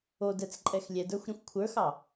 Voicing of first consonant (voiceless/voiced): voiced